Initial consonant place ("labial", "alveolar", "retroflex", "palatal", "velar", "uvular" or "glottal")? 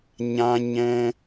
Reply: palatal